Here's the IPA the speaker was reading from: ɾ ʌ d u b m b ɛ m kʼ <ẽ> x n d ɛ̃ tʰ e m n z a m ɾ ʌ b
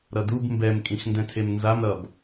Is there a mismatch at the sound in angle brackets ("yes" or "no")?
yes